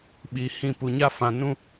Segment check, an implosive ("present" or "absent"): present